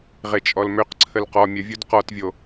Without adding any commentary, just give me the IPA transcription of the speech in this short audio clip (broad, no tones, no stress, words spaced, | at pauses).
ʁet͡ʃʼɔlmøq ǀʰəlqɔ mʲəvʲud qɔtvʲo